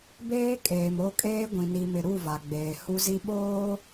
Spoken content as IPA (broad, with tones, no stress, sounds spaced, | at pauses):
b eː˦ kʼ eː˨ m o˦˨ kʼ eː˦ ɡʷ ĩ˨ n i˨ m ɪ˨ ɾ u˦˨ v a˨ ɡ͡b eː˨ h u˦ z i˦ ɓ oː˦